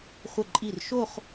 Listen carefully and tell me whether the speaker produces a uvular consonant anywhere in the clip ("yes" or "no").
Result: yes